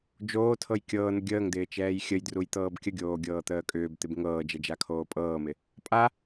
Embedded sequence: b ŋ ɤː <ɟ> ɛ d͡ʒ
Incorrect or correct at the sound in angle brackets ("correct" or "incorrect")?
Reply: incorrect